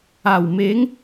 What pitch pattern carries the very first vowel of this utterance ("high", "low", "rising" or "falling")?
low